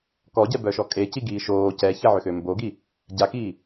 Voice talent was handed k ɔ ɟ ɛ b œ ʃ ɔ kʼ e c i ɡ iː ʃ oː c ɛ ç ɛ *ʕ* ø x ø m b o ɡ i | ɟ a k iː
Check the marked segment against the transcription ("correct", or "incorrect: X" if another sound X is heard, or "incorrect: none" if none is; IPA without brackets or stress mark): correct